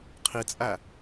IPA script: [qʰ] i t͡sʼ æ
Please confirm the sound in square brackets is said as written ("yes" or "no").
yes